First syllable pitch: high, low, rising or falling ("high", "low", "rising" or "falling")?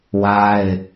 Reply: high